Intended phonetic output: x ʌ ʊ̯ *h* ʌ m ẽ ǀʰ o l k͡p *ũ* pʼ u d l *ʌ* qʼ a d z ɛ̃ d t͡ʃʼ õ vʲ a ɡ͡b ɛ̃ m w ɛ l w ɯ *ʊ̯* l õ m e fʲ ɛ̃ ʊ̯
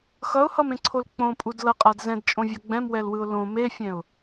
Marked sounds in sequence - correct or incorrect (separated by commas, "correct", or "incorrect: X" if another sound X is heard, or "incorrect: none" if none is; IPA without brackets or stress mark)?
correct, incorrect: õ, correct, correct